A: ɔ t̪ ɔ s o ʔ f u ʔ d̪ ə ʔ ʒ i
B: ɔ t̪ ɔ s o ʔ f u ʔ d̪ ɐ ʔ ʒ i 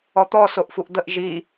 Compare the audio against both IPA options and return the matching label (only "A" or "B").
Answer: A